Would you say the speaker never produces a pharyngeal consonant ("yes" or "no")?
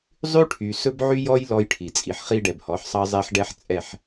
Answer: no